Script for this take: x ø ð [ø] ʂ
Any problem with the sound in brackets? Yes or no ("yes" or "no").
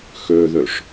no